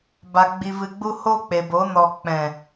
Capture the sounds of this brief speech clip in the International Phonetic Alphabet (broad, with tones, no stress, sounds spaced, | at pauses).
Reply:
b a˧ ɡ͡b i˧ v ɨ˧ ɡ͡b u˦ h o˦ k͡p e˨ b o˨˦ n ɔ˨ k͡p ɛ̃˨